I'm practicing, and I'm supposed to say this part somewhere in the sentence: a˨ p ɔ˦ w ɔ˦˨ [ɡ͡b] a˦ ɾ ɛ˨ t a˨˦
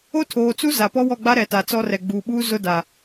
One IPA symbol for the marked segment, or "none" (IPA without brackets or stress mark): ɡ͡b